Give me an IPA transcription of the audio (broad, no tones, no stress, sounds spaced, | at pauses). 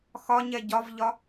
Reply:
x ɒ ɲ ɛ ɟ ɒ v ʎ ɒ